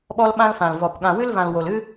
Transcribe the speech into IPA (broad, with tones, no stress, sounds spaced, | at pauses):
ɓ ɔ˦ l ɓ ã˦ l f ã˨ l v ɔ˨ p ɠ ã˨ w ɨ˦ l v ã˨ l w o˨ l ɨ˦